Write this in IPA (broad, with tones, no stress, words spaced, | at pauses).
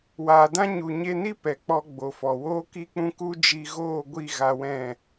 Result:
waː˨dã˦ ɲu˨ɲe˧ni˦ pɛ˨k͡pɔ˧ɡ͡bo˨fɔ˨ woː˦ki˦k͡pũ˦ ku˦d͡ʒi˧ ɣoː˦˨ɡʷi˦˨ ɣa˧wɛ̃˦˨